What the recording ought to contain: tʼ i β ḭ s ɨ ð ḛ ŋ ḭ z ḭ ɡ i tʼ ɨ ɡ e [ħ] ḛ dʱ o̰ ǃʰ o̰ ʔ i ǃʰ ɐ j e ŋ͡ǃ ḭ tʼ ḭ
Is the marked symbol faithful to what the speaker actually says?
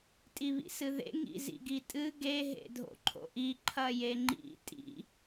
no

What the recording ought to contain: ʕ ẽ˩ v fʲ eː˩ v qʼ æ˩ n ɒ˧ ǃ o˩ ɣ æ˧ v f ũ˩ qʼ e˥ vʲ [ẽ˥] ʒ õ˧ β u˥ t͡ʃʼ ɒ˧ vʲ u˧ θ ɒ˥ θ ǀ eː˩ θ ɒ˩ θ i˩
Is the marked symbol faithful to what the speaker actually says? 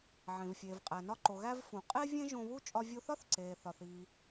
yes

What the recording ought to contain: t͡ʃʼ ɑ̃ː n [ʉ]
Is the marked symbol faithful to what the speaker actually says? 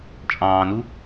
no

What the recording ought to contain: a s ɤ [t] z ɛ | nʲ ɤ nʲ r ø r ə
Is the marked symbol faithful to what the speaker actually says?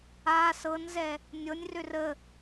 no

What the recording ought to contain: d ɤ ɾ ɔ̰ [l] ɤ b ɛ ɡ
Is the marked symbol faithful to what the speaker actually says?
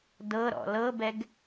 yes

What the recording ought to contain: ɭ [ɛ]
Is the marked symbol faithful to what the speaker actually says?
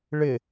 no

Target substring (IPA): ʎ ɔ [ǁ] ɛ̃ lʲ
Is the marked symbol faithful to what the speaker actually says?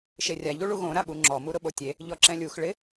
yes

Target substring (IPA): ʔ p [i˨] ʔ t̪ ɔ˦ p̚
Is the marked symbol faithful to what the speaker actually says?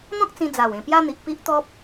no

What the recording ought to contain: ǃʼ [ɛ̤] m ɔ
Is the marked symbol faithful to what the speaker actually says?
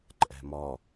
yes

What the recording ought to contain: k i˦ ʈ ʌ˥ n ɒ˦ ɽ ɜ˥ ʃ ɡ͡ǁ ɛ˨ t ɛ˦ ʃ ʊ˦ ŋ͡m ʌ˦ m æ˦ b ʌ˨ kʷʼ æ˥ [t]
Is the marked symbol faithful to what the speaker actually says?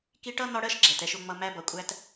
yes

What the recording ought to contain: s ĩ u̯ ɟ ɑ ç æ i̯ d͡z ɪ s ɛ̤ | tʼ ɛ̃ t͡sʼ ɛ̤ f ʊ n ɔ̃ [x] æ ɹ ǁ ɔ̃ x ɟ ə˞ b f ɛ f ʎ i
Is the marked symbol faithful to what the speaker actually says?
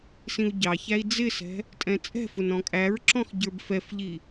no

